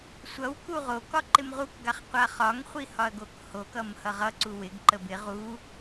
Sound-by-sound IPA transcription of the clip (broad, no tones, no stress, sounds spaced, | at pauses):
sʷ ʌ w k u ʁ o k ɒ ǃ ɪ m ʁ u k ɡ a χ qʷ a χ ɒ ŋ χʷ i h ɒ ɐ̯ ɡ o k h o k ʌ m h ʌ ʁ ʌ ǀ u w ɪ ɡ ǃ ə b ɪ ʁ u